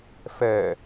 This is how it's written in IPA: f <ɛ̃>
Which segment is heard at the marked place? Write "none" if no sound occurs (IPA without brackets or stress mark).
ɛ